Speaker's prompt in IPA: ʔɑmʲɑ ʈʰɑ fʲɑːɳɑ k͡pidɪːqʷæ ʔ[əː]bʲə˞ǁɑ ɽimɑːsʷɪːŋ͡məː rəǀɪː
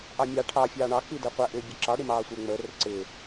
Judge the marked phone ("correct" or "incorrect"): incorrect